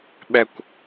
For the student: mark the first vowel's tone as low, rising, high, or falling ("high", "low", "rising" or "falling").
falling